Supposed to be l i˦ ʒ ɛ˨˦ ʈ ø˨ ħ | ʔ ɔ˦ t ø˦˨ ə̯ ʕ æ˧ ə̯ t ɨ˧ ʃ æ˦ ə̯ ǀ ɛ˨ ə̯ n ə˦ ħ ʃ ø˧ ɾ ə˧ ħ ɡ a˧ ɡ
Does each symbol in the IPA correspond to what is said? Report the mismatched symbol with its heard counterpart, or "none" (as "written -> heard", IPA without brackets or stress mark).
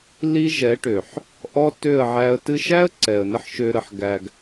a˧ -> æ˧